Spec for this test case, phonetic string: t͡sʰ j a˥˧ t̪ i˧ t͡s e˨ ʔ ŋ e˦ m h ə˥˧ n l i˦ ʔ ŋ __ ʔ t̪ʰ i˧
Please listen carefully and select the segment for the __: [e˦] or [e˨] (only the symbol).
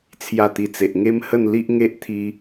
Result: e˦